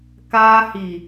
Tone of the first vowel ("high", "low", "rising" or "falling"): high